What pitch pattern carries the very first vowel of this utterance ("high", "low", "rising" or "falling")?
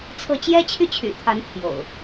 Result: falling